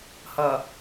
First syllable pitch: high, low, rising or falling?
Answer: low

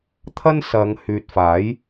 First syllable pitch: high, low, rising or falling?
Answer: high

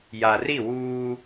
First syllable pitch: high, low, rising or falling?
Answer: low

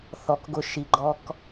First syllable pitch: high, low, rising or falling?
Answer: low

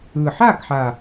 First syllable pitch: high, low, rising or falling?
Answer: low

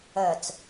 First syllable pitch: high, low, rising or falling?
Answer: low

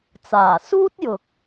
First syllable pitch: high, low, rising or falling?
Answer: low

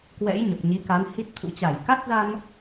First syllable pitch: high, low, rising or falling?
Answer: rising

